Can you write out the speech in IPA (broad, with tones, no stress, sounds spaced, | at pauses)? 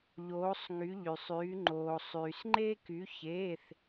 ʎ oː˧˥ sˤ ŋ y˧˥ ʎ y˧ sˤ yː˧˥ ŋ͡ǃ oː˧ sˤ yː˧ s ŋ͡ǃ e˥ k y˧˥ ç eː˧˥˧ θ